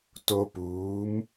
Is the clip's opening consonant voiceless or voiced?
voiceless